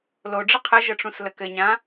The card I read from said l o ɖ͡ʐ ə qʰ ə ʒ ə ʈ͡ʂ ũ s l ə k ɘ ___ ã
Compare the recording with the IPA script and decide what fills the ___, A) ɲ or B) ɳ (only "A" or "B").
A